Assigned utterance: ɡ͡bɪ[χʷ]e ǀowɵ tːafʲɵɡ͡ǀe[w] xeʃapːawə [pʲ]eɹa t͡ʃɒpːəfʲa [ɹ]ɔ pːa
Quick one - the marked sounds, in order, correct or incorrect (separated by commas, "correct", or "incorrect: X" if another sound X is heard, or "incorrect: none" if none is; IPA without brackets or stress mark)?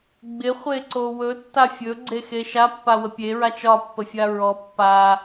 correct, incorrect: none, correct, correct